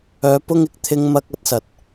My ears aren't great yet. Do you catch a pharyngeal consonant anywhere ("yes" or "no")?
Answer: no